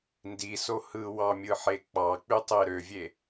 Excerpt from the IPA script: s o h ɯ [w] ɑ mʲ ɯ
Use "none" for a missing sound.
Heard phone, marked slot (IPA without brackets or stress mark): w